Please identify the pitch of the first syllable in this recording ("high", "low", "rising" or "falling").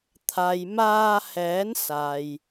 low